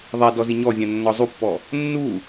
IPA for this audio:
ðˤ ɛ d ɔ z i ɲ ɔ vʲ ã nː ɔ zˤ u pː ɔ | nː u

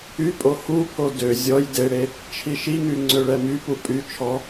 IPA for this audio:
y pʼ o h u pʰ o d ø zʲ ɔ j d e ɽ e | t͡ʃʰ i ʃ i ŋ y ŋ͡ǀ ø ɭ ɛ m y p u pʼ y t͡ʃʰ ɔ

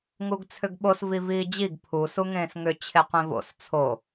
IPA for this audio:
ŋ u ɡ t͡sʰ ʏ ɡ ɓ o s v i v iː d͡ʑ i ɡ pʰ u s u ŋ ẽː s ŋ ʏ t͡ɕʰ e qʷ ẽ v o̰ s t͡sʰ o

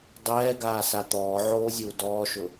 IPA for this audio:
dˤ ɛː ɡ aː s a t̪ ɔː ʕ oː zʲ uː d ɔː ʃ ʊ

